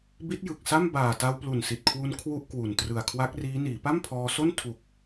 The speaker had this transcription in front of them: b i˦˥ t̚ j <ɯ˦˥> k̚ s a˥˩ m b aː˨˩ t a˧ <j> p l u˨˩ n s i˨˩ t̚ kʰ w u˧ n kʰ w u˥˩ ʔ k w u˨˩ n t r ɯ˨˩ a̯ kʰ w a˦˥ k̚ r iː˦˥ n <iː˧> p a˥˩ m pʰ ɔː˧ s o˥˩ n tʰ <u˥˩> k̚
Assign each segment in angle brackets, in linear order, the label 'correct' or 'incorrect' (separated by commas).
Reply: incorrect, incorrect, incorrect, incorrect